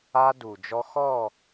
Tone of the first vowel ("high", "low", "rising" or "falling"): high